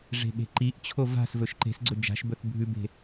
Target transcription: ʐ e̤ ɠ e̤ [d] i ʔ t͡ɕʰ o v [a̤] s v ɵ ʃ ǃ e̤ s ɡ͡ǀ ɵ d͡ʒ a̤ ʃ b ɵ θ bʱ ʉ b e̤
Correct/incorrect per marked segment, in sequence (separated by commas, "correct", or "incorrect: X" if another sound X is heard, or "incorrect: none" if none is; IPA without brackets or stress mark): incorrect: ǃ, correct